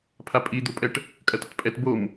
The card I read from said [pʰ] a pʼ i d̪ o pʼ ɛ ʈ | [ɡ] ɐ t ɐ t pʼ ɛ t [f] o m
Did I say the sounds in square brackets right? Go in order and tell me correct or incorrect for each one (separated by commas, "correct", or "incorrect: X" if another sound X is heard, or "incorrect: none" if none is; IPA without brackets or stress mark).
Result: correct, incorrect: kʼ, incorrect: b